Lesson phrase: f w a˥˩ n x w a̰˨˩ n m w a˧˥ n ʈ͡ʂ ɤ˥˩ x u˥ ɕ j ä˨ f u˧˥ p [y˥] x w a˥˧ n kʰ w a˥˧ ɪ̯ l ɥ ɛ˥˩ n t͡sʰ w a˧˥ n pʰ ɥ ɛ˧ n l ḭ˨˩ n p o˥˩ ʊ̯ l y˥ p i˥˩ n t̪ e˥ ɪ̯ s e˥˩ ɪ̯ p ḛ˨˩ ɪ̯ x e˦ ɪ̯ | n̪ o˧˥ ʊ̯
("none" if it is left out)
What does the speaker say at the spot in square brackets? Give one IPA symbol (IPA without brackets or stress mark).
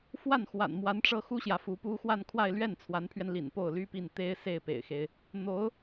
u˥